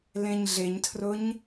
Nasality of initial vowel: nasal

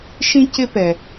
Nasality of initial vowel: nasal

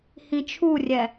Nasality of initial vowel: nasal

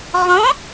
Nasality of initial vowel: nasal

